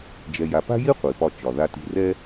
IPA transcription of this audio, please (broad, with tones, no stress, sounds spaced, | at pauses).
d͡ʒ ɛ˧ j a˧ p a̤˥ j i˥ qʷ i˩ p ɒ˧ t͡ʃ ɒ˩ ð a˧ t i̤˧ r ɛ˥